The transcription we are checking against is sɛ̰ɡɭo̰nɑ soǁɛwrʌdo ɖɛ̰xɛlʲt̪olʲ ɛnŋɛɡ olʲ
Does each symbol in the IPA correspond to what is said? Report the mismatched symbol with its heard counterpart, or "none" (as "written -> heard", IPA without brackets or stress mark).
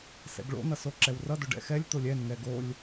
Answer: ɑ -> ʌ